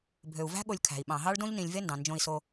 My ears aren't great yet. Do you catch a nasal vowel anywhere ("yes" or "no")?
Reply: yes